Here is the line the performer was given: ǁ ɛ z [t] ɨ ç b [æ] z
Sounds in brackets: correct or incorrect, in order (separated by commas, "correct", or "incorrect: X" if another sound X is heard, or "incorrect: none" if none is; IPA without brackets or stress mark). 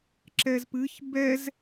incorrect: p, incorrect: ɛ